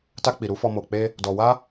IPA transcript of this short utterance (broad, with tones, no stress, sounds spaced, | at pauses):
t a˧ k͡p i˨ ɾ u˧ f ɔ˧ m o˨ k͡p e˧ | d ɔ˨ w a˧